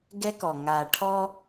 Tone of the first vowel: high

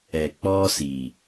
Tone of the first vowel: low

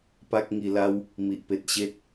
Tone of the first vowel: high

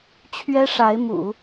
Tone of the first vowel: high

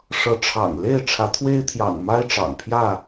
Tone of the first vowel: rising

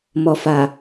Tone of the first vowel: low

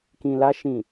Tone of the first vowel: low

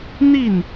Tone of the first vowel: falling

